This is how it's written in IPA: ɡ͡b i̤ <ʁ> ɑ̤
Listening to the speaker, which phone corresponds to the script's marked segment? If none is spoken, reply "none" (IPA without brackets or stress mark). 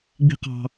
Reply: q